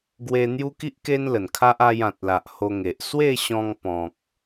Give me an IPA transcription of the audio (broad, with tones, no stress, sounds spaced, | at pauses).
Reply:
ɡ w e˧ n̪ j u˦ k i˦ ʔ k e˦ n l ə˨˩ n kʰ a˦ ʔ a˧ j ã˨ t̚ l a˨ ʔ h o˧ ŋ e˨ ʔ s w e˥˧ ɕ ɔ̃˧ ŋ p ɔ̃˨ k̚